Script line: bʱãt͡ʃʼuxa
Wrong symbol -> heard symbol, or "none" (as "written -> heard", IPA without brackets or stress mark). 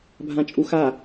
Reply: none